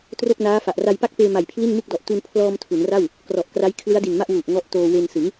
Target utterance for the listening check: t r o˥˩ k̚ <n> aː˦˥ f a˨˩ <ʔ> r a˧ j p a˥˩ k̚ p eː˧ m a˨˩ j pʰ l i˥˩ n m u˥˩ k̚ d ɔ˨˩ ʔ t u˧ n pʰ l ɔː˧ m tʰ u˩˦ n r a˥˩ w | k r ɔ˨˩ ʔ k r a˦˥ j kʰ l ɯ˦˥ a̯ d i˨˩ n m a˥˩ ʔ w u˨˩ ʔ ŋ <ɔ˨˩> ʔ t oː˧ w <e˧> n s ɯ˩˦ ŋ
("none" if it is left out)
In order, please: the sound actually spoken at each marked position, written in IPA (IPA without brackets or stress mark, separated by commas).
n, ʔ, ɔ˦˥, e˧